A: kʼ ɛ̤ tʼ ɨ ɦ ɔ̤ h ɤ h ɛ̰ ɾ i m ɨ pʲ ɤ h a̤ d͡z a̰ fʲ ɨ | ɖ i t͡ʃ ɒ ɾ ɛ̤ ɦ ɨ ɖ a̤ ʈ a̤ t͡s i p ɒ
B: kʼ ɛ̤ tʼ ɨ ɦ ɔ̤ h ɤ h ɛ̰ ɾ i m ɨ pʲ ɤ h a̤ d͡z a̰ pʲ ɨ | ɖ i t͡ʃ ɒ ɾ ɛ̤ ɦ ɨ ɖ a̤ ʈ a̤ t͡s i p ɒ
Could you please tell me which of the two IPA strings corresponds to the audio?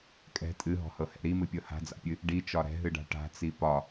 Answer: B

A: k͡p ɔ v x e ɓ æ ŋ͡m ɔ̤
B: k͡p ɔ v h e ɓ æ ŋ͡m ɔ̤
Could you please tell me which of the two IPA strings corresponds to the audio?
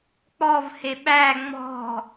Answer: B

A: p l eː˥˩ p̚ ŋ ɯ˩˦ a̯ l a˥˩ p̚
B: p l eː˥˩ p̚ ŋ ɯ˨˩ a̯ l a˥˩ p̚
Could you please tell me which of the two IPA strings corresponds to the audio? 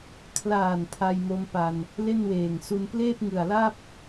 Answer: B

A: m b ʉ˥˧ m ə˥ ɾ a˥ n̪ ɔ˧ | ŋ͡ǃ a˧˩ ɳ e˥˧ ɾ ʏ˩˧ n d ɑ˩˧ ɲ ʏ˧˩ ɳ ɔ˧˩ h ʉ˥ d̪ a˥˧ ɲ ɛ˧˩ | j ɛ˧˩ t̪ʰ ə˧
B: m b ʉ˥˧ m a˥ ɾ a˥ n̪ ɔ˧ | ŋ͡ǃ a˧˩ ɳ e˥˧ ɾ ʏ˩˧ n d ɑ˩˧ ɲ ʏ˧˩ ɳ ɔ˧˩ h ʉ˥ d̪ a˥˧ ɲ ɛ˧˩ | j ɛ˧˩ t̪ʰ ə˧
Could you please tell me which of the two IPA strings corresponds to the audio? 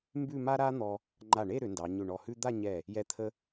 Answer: B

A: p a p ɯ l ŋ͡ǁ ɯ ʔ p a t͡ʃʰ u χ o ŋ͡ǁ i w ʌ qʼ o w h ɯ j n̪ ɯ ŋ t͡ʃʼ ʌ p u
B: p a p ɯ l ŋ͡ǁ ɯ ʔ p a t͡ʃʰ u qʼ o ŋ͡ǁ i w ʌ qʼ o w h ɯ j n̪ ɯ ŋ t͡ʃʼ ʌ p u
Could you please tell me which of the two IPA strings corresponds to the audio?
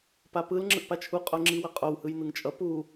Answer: B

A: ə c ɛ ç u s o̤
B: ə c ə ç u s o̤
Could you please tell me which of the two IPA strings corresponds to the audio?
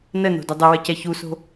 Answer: A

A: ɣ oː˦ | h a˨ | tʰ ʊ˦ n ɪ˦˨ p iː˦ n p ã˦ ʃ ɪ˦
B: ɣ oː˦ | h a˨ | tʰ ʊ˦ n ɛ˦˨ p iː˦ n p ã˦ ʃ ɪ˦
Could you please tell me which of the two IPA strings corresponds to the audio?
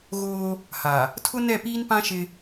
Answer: B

